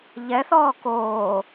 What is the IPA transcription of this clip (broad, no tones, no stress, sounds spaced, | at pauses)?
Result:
ʎ ɛ θ ɔː k oː